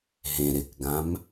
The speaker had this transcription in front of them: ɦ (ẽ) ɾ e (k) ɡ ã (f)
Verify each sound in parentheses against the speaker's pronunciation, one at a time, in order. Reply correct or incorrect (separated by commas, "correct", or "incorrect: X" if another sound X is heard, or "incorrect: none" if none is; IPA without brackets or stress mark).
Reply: correct, correct, incorrect: m